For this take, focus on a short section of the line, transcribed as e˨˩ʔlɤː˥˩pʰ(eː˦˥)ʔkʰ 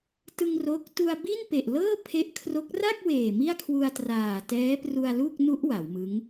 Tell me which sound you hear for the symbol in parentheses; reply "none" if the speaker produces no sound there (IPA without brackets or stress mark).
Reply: e˦˥